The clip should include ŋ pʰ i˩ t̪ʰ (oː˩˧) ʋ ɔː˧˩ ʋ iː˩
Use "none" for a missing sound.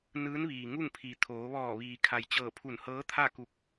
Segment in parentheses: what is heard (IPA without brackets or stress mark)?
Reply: oː˩˧